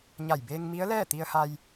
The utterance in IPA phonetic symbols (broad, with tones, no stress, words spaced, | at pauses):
ɲa˧˩jbeː˧ŋmi˧˥ə̯lɛː˥˨ t̪i˧ə̯ha˧j